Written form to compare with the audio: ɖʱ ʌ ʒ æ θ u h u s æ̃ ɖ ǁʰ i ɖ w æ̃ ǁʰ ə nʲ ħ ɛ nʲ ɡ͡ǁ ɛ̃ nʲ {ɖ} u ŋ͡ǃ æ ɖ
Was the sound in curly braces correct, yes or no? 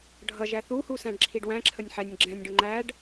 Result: yes